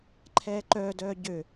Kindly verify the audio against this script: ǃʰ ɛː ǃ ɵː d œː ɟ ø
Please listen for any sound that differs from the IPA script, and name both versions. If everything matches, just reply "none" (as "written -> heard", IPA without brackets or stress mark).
ɵː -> œː